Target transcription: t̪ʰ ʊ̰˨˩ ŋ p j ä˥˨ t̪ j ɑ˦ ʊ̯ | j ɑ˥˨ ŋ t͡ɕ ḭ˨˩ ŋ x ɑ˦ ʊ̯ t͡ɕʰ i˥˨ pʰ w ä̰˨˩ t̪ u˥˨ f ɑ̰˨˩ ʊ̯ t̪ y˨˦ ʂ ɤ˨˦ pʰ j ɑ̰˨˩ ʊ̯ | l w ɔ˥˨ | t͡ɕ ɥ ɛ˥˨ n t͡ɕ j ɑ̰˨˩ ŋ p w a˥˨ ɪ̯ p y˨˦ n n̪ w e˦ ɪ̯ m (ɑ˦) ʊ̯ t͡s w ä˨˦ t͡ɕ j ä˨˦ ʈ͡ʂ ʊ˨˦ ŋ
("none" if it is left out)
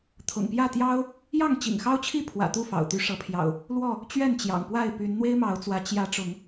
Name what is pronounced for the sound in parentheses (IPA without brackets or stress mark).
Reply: ɑ˨˦